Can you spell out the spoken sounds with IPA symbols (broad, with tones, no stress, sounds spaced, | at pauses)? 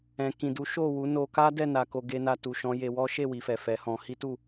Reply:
ɛ̃˨ k ĩ˨ d u˨˦ ʃ o˦˨ w u˨˦ n o˧ k a˦ d ɛ˦˨ n a˧ k o˧ ɡ e˦ n a˦ t u˧ ʃ ɔ̃˦ j e˧ w ɔ˦ ʃ e˦˨ w i˨ f ɛ˨ f ɛ˨˦ h ɔ̃˧ h i˦ t u˦˨